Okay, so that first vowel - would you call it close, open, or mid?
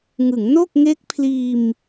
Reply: close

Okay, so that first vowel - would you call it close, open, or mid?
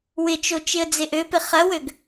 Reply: close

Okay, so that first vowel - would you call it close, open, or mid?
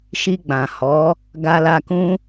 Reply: close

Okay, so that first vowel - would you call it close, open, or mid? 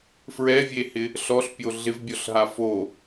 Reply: mid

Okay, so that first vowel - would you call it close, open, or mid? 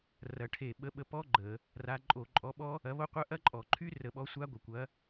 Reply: open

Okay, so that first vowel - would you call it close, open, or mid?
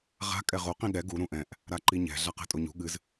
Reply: open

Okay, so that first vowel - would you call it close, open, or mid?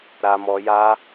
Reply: open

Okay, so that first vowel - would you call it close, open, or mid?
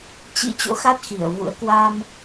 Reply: close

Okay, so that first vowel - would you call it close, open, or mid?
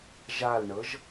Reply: open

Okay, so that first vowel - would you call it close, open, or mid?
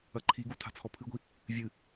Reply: open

